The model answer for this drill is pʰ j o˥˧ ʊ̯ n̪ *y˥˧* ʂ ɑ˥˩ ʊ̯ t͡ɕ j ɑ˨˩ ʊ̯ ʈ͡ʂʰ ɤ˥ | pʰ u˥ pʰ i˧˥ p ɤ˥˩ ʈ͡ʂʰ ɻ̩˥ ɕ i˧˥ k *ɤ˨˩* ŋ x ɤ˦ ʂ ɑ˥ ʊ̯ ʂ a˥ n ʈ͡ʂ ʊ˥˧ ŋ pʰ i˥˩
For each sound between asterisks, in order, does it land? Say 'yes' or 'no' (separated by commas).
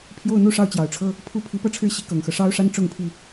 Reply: no, yes